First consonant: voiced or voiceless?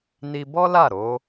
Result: voiced